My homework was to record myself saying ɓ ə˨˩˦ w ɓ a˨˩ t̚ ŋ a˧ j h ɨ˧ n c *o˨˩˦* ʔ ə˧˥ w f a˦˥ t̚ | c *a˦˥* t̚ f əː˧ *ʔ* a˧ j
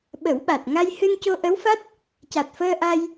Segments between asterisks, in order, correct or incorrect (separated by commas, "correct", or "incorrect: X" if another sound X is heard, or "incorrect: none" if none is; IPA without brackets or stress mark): incorrect: o˧, incorrect: a˨˩, correct